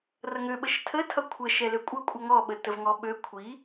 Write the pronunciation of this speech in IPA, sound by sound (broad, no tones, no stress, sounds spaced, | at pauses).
r ʌ ŋ ø ɓ ə ʃ tʰ ə tʰ ʌ kʷʰ ə ʃ ɛ l ø kʷʼ ʌ kʷʼ ʌ ŋ ɔ ɓ ə t ə v ŋ ɔ ɓ ø kʷʰ i